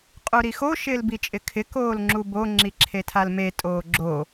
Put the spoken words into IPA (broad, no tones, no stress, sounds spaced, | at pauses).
qʼ u ɾ i x o ʃ ɪː l b i t͡ʃʼ ɪ kʰ ɪ k oː l ŋ͡ǁ u b o ŋ͡ǁ i ǁʰ e tʰ a l m e tʼ oː ɡ͡ǁ o